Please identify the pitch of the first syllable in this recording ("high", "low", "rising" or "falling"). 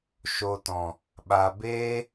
low